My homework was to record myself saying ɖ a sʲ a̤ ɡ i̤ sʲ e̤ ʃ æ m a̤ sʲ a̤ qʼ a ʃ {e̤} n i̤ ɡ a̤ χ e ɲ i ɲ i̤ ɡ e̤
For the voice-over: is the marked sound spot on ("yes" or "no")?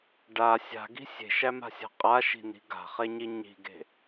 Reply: no